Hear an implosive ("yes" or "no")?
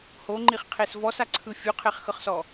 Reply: no